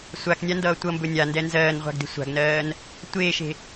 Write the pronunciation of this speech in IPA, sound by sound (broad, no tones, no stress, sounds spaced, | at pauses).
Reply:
sʷ a k nʲ a n d ʌː tʷ ʌ m b ɵ nʲ a n d ɛ n z ɜː n ʁʷ a̤ ɡ d e̤ sʷ a̤ ɡ n ɜː n | tʷ eː ʃ e̤